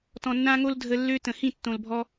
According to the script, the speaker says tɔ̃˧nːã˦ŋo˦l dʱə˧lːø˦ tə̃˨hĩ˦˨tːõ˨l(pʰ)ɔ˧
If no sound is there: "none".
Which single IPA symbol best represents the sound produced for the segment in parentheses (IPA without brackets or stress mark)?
bʱ